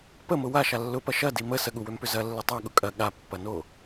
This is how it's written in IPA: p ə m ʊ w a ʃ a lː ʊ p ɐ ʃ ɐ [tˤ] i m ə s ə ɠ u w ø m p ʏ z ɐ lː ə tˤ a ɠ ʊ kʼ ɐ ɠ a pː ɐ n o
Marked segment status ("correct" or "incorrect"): incorrect